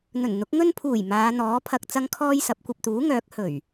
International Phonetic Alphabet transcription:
n̪ɵ˨˩n n̪ʊ˨˥k̚ ŋɵ˧npʰuː˨˩j maː˨˧n̪ɔː˨˥pʰɐ˧k̚ t͡sɐ˥ŋkʰɔː˥jsɐ˨˥p̚ kʷɐ˨p̚t̪uː˨˥ŋœː˨˥k̚ hɵ˨˩ɥ

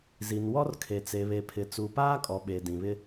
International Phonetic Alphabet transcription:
zi˨nwɔ˦rkʰe˨ t͡se˨βe˨pʰɪ˨ t͡su˨paː˦kʼɔ˨ ɓe˨dĩ˨βɪ˦

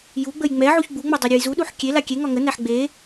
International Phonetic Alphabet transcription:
juɡ͡bəj ŋ͡mɛ ʕuçɡ͡buŋ͡mo dˤɛɾʲojzuɗuħ kʲe lakʲeŋɒ ŋənæħ ɡ͡be

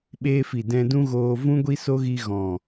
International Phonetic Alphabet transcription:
ɓeː˧fi˨ dɛ̃˧dũ˦ɣoː˧ vũ˦ ɡʷi˦so˦ɣi˧ ɣɔ̃˨

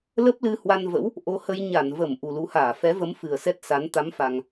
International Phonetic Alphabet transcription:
lə˦˥p̚lɨ˧ hwa˧nvə̰˧˥w | ʔo˧hə˧j ɲa˧˩nvə˧˩m ʔu˨˩lu˨˦haː˧˩ fɛ˨˦və˨˦m fɨ˨˩ə̯sɛ˦˥t̚sa˨˦n t̪a˨˦mfa˨˩ŋ

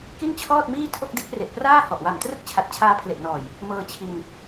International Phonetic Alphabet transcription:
ki˥˩nt͡ɕʰɔː˥˩t̚miː˥˩tʰo˥˩k̚ de˦˥k̚re˨˩ʔpraː˥˩hɔ˨˩ʔ wa˨˩mtrɯ˥˩k̚ t͡ɕʰa˨˩t̚t͡ɕʰaː˧pʰle˨˩ʔnɔː˨˩j | mɤː˧ t͡ɕʰi˧n

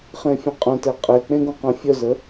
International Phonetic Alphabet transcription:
χẽfʲə̃qʼœ̃tɛ qʼe k͡pẽɡũqə̃ fʲœzə

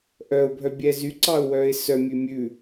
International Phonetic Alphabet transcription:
ʔœʊ̯bʱœ bʲɛzyǀɑʊ̯wœːɪ̯ sœmʲʉ mʲʉ

